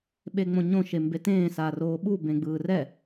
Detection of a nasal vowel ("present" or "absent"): present